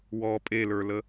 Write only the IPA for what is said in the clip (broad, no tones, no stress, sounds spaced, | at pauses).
w ɔ pʼ e l ə˞ l ə